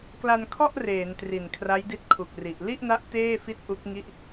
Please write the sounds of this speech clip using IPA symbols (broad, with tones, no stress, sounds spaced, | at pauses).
k l a˧ n kʰ ɔ˥˩ ʔ r eː˩˦ n t r i˨˩ n kʰ r a˦˥ j d i˦˥ t̚ kʰ u˨˩ k̚ r i˨˩ ʔ l i˥˩ ʔ n a˦˥ ʔ t eː˥˩ f i˦˥ t̚ ʔ u˦˥ k̚ ŋ i˥˩ ʔ